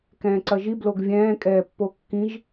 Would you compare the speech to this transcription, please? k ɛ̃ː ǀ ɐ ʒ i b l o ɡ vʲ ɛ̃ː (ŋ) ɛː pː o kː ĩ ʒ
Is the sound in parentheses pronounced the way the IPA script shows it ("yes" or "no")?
no